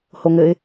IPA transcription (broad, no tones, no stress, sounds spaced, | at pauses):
h o ŋ ɘ ɪ̯